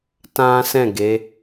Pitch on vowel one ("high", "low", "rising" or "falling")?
high